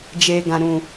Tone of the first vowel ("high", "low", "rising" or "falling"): low